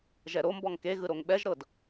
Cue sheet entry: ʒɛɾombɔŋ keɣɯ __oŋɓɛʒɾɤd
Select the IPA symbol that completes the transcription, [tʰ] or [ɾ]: ɾ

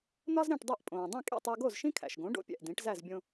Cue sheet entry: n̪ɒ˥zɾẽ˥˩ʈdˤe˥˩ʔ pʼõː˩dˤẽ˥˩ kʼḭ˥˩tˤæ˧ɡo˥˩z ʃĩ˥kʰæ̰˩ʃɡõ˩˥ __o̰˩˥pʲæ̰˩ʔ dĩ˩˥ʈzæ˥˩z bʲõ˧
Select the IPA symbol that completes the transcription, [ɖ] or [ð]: ɖ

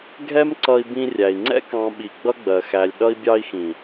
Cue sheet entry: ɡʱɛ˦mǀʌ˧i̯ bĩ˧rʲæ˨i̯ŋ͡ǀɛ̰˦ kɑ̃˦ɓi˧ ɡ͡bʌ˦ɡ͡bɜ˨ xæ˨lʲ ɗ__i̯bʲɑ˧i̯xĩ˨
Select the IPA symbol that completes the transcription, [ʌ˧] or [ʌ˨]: ʌ˧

